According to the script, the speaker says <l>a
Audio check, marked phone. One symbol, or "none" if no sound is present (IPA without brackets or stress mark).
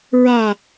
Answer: ɹ